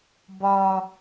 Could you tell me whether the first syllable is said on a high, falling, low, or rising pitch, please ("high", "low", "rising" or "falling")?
low